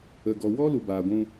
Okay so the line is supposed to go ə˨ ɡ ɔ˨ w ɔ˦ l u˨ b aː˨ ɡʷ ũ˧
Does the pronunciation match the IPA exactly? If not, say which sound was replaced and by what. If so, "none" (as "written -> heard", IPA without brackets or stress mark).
none